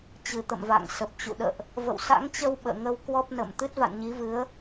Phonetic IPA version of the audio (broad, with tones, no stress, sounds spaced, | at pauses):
t͡ɕ ɨ˨˩ t̪ ə̰˧˨ m v a̰˧˨ ŋ s ə˨˩ p̚ t͡ɕ ṵ˧˨ ɗ ə̰ː˧˨ ʔ | v ə̰˧˨ w s a̰˧˥ ŋ t͡ɕ ə˧ w ɓ ə̰ː˧˨ ŋ ə˧ w k w ɔ˦˥ p̚ n ə̰˧˨ m t̪ ɨ˦˥ t̚ v a̰˧˨ n ɲ i˨˦ v ɨ˨˦ ə̯